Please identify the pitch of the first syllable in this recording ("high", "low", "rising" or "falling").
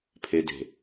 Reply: low